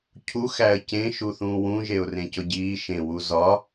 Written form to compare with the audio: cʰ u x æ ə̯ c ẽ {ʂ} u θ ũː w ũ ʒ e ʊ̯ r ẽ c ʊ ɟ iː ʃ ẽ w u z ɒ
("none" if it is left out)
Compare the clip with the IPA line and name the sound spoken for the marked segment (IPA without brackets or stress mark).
ʃ